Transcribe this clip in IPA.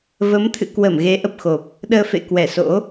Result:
v ə˨˦ m t̪ʰ ɨ̰˧˨ k w ə˧˩ m ɣ e˨˦ ʔ ə˨˩ p̚ x o˨˩ p̚ | ɗ əː˧ f ḛ˧˨ k w ɛ˧˩ s o̰˧˥

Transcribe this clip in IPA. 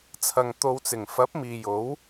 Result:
t͡sʰ ɐ˨ ŋ t̪ o˨˧ w t͡s ɪ˨˩ ŋ f ɐ˨˥ p̚ m iː˨ j o˨˥ w

